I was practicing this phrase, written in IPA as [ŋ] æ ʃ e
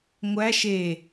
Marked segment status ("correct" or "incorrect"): incorrect